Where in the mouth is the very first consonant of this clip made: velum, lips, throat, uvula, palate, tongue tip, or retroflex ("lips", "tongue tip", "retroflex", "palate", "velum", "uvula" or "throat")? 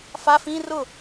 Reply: lips